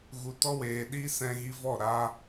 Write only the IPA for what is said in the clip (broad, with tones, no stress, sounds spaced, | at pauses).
ɣ u˨ t ɔ˦ w eː˨ ɗ iː˦ s ɛ̃˧ ɣ i˧ v ɔ˦˨ ɾ aː˧